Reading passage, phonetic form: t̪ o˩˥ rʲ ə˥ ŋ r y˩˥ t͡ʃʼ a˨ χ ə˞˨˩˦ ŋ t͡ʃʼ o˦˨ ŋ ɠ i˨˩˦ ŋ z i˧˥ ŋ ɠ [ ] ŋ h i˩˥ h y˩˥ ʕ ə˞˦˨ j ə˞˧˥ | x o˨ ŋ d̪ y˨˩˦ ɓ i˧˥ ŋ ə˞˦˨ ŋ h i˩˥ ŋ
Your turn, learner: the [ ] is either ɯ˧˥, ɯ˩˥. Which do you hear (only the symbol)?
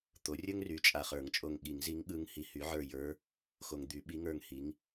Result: ɯ˧˥